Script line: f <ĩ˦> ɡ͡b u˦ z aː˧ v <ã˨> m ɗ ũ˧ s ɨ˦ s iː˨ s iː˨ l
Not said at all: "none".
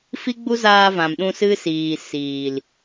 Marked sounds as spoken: i˦, ã˨

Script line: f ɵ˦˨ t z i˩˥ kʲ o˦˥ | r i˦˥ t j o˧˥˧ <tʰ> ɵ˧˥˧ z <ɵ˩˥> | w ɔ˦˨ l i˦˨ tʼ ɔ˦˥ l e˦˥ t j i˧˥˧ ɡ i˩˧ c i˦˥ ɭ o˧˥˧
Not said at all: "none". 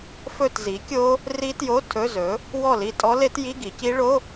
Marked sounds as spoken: tʰ, ɵ˩˥

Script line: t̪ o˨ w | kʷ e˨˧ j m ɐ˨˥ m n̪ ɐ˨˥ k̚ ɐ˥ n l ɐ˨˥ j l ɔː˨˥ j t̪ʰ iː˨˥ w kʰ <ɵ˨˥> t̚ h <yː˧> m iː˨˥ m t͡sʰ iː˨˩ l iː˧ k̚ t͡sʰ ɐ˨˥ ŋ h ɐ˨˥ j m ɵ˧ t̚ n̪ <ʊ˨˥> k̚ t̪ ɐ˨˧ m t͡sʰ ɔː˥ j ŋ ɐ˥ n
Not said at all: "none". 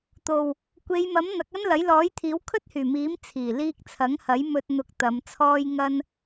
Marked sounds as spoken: ɵ˥, yː˨˩, ʊ˨˥

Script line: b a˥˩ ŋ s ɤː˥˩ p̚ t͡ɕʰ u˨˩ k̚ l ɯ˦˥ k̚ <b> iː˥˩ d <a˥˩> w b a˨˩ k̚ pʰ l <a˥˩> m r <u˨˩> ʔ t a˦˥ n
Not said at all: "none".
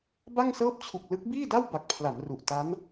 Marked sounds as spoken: b, a˥˩, a˩˦, u˨˩

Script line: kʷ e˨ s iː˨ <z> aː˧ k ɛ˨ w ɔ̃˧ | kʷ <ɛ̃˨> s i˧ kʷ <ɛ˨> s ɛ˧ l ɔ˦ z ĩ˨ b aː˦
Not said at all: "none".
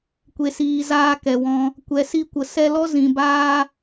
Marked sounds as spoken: z, ɛ˨, ə˨

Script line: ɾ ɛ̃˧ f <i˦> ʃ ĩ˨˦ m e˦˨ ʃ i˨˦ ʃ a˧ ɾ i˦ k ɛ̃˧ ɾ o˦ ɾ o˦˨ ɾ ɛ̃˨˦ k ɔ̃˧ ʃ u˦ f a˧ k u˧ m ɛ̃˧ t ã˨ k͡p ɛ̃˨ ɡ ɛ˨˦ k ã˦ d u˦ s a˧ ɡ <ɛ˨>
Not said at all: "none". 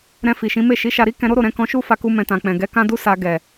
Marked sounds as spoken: i˨, ɛ˨

